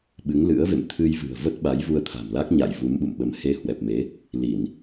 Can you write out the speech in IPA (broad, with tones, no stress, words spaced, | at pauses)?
ɓɨ˨˦ŋlɨ̰˧˥ə̯vḛ˧˨m t̪ʰɨ˧jvɨ̤˨˩ə̯və˦˥t̚ɓa˨˦j vu˧ə̯t̪ʰa̤˨˩mla˦˥k̚ɲa̰˧˨j vu˨˦mɓṵ˧˨mɓə˨˦m he˧hwɛ˨˩p̚me˨˦ | li˧˩˨n